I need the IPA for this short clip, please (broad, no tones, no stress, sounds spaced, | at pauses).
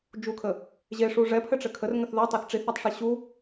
d͡ʒ u kʰ ə | ʑ e ʂ u ʐ ɛ pʰ ɘ ʈ͡ʂ ɘ kʰ ə r ŋ ə θ ð ɤ tˤ ɛ θ ʈ͡ʂ i θ a tˤ ʂ i ɕ u